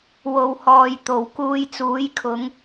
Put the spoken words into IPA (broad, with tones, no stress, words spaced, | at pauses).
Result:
wo˨whɔː˨jt̪o˨˩w kuː˧jt͡suː˨˥jkʰʊ˨˧ŋ